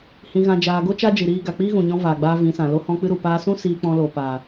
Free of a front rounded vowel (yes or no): yes